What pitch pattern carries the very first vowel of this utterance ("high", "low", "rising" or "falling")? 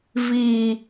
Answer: low